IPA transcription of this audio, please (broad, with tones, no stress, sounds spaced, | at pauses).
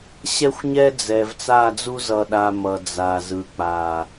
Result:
ɕ ɛ˦ xʷ ɲ ɛ˦ d͡z ɛ˨ v t͡s a˦˨ d͡z u˦ z ʌ˨ ɗ a˨ m ʌ˨ d͡z a˨ z ɯ˨ k͡p a˨